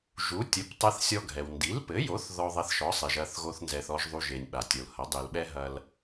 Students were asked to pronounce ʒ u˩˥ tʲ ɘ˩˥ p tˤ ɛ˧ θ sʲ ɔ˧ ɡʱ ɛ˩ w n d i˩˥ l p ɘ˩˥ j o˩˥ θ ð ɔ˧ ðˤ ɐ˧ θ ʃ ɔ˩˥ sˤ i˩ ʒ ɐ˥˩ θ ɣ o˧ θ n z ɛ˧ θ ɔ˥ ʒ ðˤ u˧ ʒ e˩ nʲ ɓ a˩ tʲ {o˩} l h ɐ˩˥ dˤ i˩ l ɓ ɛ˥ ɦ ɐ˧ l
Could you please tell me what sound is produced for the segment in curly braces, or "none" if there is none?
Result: o˩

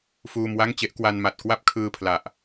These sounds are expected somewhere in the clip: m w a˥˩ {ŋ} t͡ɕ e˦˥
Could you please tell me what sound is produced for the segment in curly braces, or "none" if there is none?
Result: ŋ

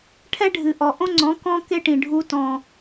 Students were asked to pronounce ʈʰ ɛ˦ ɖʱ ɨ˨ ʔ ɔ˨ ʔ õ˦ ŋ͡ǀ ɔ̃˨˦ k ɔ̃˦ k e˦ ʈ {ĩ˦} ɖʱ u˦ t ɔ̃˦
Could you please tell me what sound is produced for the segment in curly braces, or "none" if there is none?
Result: ĩ˨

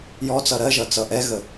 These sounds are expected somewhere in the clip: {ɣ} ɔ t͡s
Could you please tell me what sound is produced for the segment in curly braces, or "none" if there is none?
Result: j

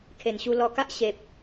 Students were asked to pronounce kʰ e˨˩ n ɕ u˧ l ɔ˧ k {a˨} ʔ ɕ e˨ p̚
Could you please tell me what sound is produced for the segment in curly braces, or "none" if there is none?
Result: a˦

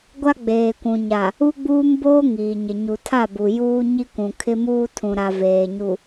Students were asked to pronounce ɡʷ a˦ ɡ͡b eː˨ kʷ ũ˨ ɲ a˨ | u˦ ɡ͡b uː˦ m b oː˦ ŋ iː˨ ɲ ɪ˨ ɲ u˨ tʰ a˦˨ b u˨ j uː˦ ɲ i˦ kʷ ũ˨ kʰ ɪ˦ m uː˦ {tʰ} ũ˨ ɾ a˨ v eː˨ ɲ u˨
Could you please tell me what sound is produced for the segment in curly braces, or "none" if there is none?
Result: tʰ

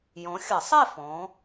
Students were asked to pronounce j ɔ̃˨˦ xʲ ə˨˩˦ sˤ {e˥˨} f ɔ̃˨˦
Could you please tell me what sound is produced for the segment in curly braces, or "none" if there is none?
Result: e˥˨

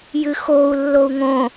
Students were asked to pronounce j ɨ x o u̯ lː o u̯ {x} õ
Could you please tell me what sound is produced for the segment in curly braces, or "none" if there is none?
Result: ŋ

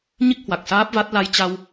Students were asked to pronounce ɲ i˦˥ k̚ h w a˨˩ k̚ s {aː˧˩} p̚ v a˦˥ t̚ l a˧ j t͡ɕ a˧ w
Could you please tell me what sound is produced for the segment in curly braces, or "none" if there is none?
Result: aː˦˥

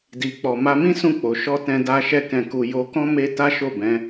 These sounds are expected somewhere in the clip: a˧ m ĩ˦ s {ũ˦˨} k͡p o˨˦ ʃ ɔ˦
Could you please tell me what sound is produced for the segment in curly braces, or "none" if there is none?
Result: ũ˦˨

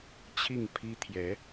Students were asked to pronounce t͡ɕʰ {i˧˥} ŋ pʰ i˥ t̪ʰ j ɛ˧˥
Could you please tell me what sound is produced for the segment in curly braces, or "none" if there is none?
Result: i˥˩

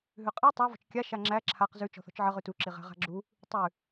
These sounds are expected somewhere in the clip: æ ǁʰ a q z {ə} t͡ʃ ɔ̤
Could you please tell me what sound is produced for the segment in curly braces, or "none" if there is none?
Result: ʉ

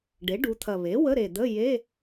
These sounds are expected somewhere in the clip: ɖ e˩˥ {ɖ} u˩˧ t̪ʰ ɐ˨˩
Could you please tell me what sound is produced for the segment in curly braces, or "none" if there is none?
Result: ɖ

